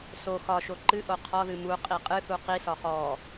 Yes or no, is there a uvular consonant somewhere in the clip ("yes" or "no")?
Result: yes